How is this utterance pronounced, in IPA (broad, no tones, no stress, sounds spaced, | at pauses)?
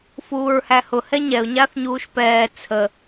f uː ɹ h æ h ʊ h ɛ ɲ ɛ ʊ̯ ɲ a θ ɲ uː ʃ p ɛː t͡sʰ ə